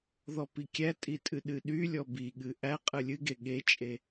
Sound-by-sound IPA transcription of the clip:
ð ɔ p i kʲ æ tʼ i tʼ ɨ ɗ ɨ ɗ y lʲ ɔ b i ɠ ɨ ʔ æ qʼ ɨ lʲ ɨ ɡ e ɠ e t͡ʃʼ e

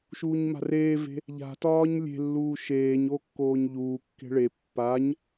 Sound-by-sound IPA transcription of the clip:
ʃ uː ɲ m a̤ r eː v e̤ | ʎ a̤ t ɒː ɲ lʲ e̤ lː uː ʃ eː ɲ o kː oː ɲ ʎ uː kː e̤ ɭ e pː a ɲ

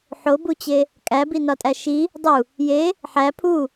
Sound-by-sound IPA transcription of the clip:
ħ o b u t͡ɕ e | kʼ æ b i n ɒ tʼ æ ʃ i | dˤ u | j e | ħ æ pʰ u

